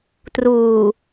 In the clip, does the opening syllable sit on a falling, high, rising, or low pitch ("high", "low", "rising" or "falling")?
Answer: low